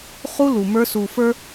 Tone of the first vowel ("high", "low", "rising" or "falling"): high